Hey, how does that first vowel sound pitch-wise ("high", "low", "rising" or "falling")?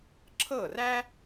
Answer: falling